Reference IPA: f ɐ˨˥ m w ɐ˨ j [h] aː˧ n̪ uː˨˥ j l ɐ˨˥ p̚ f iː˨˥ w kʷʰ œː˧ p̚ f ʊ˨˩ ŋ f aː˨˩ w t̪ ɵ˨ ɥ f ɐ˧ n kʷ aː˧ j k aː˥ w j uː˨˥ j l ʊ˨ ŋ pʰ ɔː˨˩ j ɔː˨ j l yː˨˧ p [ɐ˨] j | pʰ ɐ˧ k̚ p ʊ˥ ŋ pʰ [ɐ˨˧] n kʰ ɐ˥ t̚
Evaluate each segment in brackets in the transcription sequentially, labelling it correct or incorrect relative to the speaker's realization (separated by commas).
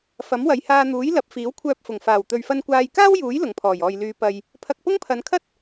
correct, correct, correct